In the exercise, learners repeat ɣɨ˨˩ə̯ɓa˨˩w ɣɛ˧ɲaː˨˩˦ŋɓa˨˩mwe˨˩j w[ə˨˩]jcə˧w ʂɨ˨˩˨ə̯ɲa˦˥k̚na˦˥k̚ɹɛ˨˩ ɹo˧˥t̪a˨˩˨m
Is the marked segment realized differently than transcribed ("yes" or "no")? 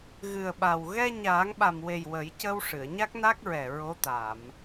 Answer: yes